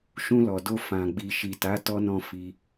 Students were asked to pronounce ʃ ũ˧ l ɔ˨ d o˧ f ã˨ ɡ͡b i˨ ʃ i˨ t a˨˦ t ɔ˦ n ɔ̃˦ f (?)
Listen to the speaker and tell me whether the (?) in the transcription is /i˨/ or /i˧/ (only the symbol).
i˧